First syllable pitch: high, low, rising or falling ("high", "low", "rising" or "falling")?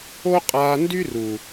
high